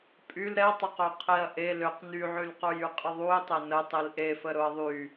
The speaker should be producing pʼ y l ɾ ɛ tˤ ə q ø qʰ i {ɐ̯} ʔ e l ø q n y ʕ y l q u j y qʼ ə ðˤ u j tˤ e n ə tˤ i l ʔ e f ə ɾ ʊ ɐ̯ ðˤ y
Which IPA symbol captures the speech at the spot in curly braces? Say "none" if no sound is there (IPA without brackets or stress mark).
ɐ̯